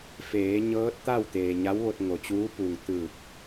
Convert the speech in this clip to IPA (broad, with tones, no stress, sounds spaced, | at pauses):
f eː˩˧ ɲ ɤː˧˥ t̚ t̪ a˥˨ w t̪ eː˩ ɲ a˧˥ w ʋ o˧ t̚ ŋ o˩ t͡ɕ uː˧˥ p u˩ ŋ t̪ ɯː˧˩ k̚